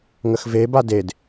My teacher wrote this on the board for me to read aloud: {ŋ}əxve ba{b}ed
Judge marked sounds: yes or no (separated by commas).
yes, no